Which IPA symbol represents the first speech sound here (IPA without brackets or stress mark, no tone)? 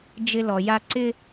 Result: d͡ʒ